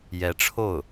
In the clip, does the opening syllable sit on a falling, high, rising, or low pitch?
rising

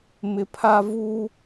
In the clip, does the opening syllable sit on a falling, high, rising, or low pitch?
low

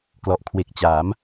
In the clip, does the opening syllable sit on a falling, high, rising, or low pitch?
low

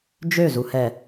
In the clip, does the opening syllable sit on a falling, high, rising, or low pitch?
falling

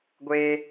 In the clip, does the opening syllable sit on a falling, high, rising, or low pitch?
high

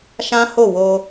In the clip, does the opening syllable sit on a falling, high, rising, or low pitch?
high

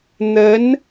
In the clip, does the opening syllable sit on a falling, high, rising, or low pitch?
rising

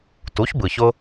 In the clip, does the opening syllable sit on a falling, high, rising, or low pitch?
rising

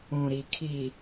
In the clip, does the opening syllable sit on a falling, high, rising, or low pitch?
low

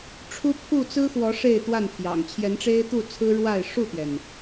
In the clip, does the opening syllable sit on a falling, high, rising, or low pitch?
high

